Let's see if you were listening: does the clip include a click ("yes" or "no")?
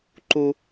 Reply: yes